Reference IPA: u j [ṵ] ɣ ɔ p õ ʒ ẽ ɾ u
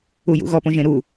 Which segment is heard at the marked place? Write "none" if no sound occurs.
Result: ṵ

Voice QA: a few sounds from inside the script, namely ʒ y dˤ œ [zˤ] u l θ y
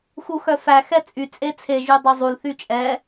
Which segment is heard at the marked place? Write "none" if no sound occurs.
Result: zˤ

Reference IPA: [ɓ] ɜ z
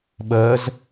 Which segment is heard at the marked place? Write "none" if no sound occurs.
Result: ɓ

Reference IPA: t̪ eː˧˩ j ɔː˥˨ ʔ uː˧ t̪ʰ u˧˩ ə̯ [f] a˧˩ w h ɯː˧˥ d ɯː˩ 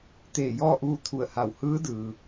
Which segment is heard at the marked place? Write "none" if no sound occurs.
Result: h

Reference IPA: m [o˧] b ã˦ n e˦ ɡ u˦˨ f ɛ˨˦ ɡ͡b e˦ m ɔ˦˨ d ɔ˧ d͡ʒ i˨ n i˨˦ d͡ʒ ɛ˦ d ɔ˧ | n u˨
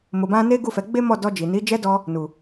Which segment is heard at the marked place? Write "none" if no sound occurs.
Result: o˧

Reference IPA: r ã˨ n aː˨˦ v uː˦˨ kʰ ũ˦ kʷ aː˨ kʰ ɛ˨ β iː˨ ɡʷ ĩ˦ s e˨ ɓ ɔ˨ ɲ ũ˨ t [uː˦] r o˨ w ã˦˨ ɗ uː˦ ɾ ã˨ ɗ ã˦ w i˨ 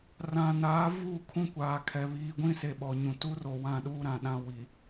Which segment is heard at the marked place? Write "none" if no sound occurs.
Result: u˦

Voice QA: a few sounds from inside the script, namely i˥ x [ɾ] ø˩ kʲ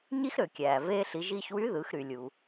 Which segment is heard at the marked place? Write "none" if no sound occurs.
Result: ɾ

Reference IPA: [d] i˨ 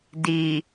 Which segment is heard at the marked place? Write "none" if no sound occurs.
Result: d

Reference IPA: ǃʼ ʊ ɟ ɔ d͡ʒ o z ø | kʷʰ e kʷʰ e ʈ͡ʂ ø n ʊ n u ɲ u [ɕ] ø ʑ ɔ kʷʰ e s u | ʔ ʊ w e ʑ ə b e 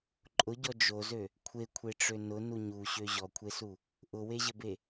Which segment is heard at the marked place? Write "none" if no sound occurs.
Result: ɕ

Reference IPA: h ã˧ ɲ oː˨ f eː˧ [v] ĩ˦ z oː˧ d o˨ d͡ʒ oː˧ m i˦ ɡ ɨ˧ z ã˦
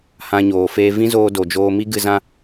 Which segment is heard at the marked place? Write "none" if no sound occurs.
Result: v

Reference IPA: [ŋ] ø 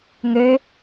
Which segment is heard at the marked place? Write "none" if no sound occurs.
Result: ŋ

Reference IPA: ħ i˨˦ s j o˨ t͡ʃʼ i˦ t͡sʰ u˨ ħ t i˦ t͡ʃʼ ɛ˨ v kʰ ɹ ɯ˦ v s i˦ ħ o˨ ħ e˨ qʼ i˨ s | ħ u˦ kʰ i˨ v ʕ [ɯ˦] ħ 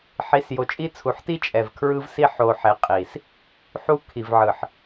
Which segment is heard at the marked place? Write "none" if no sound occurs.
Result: ɯ˨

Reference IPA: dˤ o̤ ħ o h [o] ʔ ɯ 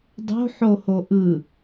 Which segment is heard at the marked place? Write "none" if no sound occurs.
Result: o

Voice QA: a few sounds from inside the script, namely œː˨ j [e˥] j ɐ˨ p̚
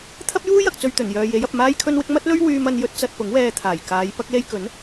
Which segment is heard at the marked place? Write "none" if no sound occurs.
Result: e˨˥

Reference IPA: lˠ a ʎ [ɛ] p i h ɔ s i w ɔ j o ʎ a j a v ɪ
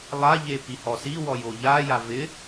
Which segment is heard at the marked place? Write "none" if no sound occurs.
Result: e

